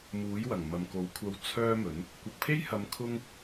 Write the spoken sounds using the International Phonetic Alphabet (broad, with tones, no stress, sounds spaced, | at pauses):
m uː˨˥ j w ɐ˨˩ ŋ m ɐ˨ m k o˨˥ w kʷʰ ɐ˧ w t͡sʰ œː˥ m ɵ˨˥ n | kʷ ɐ˨ k̚ pʰ e˥ j h ɐ˨˧ m kʰ ʊ˥ ŋ